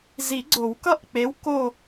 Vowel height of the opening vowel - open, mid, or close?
close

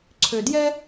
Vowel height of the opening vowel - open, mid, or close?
mid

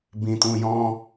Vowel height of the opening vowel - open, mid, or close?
close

